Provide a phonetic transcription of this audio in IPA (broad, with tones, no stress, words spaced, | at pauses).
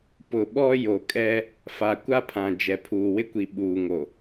pʊ˨ɓɔ˦ jo˨kʼɛ˦ | fa˨kʷa˦pʰã˨ d͡ʒɛ˨pʰuː˨ wɪ˦kʷi˨ɓuː˨ŋo˨